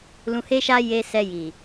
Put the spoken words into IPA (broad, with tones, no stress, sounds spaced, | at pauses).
l ũ˨ h e˧ ʃ a˧ j e˧ s ɛ˧ j i˨